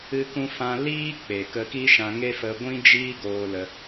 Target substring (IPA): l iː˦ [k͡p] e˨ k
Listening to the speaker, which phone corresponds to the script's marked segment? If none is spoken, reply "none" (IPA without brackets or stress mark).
k͡p